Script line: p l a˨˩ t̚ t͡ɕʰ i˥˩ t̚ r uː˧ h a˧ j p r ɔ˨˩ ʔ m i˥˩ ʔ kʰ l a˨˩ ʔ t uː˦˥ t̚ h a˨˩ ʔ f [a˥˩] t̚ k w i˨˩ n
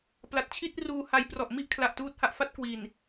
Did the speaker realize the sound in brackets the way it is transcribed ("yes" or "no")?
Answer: yes